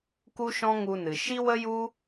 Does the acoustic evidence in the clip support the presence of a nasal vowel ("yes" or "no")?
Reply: yes